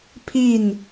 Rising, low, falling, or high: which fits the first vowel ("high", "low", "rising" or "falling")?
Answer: falling